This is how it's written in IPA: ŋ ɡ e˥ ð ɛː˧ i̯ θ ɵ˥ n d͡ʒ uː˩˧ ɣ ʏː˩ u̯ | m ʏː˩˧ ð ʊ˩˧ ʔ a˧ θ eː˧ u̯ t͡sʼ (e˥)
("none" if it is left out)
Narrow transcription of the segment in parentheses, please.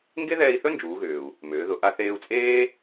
eː˥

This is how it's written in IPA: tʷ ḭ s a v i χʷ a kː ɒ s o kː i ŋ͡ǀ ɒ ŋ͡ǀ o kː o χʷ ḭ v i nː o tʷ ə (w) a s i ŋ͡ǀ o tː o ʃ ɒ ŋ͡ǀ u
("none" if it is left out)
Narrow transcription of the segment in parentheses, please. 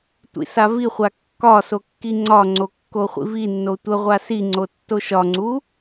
ʁʷ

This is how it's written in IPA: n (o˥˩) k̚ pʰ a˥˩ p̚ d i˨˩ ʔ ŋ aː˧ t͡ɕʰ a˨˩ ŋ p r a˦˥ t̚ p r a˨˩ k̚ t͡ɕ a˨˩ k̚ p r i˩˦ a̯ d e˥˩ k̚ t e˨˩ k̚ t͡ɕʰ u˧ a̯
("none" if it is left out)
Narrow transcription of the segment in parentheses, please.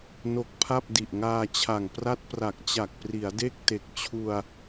o˦˥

